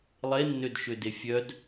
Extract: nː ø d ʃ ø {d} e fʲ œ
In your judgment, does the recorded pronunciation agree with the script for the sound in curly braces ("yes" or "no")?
yes